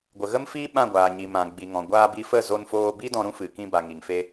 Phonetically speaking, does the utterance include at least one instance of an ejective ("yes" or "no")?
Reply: no